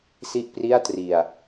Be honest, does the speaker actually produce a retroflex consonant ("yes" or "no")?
no